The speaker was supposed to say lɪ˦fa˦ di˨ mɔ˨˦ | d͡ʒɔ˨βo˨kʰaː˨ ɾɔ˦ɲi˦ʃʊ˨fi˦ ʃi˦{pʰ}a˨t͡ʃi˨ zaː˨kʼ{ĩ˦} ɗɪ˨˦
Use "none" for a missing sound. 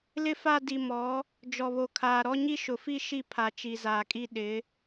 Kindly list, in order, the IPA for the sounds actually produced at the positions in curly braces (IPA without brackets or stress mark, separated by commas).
pʰ, i˦